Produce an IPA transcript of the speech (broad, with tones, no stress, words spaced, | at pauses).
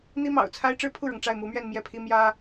n̪i˥mɑ̰˨˩ʊ̯t͡sʰa˥ɪ̯ ʈ͡ʂɻ̩˥˧pʰu˥˩ɻɤ˩ŋ ʈ͡ʂa˥˩ɪ̯mu˧˥mɥɛ˥˧n mjɛ˥˩pʰi˥ mjä˥